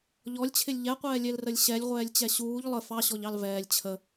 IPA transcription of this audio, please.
ʎɔlʲt͡ɕʰɪlʲ ʎɛqʷɛːlʲɛlrəlʲ ɕɛlʲʁʷɛːlʲt͡ɕɛ ɕuːʎ lˠə fɑɕɔʎɑl vɛːlʲ t͡ɕʰə

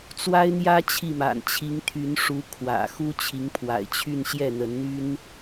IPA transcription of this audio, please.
t͡swa˥ɪ̯n̪jä˥ t͡ɕʰi˥˩ma̰˨˩n t͡ɕʰi˧˥ŋt̪ʰy˧˥nʂu˧˥ kʰwä̰˨˩ xu˥t͡ɕʰi˧˥ŋpʰwa̰˨˩ɪ̯t͡ɕʰy˥˧n ɕjɛ˥˩n̪ə˧˥nn̪y˥n

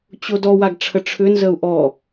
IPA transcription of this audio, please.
t͡ɕodɔwaɡ ʈ͡ʂʰəʈ͡ʂʰʏnzəu̯ ʔɔ

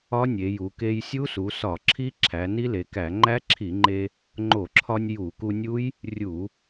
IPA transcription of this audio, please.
ɒ˦˥nʲe˩˧ju˩˧ ke˧jsʲu˦˥su˩˧ sɒ˧˩˧ǁʰi˦˥ ǁʰæ˩˧ni˦˥le˩˧kæ˧˩˧ ŋ͡ǃæ˦˥ǁʰi˧˩˧ŋ͡ǃe˧ | ŋ͡ǃo˧˩˧ǁʰɒ˧nʲ ju˧˩˧ku˧nʲu˦˥j | rʲu˧˩˧

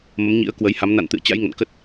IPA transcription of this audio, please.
mə˨˦mɲḭ˧˥ə̯ kwə˨˦jha˨˦m na̰˧˨nt̪ɨ̰˧˨ə̯ t͡ɕa̰˧˥j ŋə̰˧˨n kə˦˥t̚

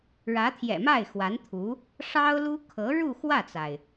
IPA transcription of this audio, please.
ɻä˧˥t̪ʰjɛ̰˨˩ma˥˩ɪ̯ xwa˧˥nt̪ʰu˧˥ | ʂɑ˥ʊ̯lu˥ kʰɤ˧˥ ɻu˥˧xwä˥˩t͡sa˩ɪ̯

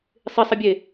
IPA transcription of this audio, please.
sˤɪsˤəbʲe

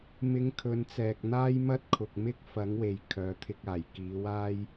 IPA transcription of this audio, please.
mɪ˧ŋ kʰɵ˨˧nt͡sɛː˨k̚ n̪aː˥jmɐ˥t̚kʰʊ˨k̚mɪ˥k̚ fɐ˨˥ŋwe˨j kʰœː˨˥t̪ʰɪ˧k̚ aː˨˩j kiː˨˥waː˥j

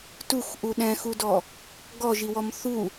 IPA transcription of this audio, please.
tuxʔu ɗɛ̃xudɔ | ɡɔʒiwɔm θu

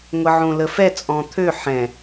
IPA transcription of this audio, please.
ŋʷəʕõləfɛ t͡sʼɔ̃t̪ʰø ħɛ̃

